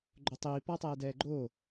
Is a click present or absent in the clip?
present